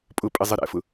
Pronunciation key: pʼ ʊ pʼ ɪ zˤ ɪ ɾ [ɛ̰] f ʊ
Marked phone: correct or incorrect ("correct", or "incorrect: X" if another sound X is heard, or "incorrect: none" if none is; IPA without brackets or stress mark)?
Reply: correct